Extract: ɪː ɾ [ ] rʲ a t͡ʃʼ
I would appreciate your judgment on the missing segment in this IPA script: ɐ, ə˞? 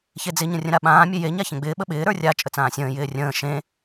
ə˞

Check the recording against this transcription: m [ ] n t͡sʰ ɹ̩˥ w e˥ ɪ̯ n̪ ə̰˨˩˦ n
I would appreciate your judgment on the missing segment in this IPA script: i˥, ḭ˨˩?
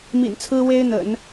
ḭ˨˩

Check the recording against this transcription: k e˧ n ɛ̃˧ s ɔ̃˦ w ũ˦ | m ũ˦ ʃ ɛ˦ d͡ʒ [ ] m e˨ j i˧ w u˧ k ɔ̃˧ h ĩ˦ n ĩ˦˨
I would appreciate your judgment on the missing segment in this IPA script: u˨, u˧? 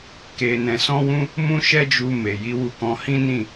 u˧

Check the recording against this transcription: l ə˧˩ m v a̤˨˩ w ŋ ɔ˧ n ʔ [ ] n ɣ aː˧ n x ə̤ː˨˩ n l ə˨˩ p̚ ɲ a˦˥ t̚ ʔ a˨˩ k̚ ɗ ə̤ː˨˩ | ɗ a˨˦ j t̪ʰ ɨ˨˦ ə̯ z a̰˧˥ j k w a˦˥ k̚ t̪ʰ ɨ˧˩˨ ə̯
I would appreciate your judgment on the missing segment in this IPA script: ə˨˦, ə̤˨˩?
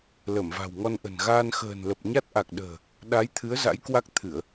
ə̤˨˩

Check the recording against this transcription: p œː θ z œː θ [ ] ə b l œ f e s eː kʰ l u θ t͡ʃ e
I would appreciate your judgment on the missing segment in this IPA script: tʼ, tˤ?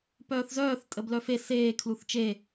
tʼ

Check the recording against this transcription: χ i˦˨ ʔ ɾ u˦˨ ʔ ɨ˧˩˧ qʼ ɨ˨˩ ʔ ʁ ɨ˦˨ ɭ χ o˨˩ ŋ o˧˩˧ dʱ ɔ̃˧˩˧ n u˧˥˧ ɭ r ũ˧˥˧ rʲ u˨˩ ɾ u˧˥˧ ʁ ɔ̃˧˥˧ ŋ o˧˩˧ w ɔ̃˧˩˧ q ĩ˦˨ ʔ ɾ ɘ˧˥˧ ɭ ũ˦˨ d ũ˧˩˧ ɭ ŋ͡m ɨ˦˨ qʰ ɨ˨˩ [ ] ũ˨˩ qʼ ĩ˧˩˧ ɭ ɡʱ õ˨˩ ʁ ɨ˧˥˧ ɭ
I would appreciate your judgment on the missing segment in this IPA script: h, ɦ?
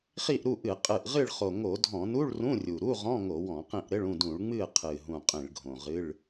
ɦ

